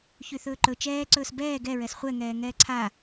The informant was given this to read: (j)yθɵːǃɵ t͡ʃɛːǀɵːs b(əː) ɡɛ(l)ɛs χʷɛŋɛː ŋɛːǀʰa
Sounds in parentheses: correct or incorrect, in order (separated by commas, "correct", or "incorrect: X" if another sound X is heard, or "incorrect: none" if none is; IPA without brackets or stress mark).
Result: incorrect: ç, incorrect: ɛː, incorrect: ɹ